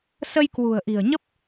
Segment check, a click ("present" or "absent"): absent